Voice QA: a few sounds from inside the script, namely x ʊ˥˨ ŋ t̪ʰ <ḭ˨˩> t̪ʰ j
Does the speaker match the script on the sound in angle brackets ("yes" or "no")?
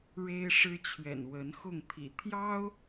yes